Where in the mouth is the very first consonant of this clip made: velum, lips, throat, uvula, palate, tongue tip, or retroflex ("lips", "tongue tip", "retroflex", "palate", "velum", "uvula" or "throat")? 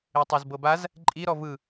tongue tip